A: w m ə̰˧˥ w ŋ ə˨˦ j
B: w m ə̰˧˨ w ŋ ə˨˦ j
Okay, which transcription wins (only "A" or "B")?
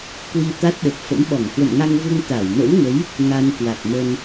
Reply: A